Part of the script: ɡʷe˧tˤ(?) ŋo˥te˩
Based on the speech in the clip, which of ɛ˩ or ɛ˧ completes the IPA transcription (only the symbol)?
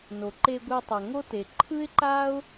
ɛ˩